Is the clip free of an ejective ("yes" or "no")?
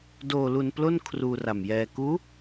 yes